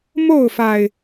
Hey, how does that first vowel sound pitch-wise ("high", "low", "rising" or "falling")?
falling